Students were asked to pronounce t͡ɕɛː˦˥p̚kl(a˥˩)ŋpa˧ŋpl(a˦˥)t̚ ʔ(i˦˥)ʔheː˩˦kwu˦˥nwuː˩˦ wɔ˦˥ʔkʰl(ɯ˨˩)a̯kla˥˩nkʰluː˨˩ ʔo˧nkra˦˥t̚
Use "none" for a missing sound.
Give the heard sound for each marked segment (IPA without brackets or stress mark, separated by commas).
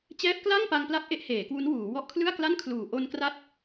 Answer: a˥˩, a˦˥, e˦˥, ɯ˥˩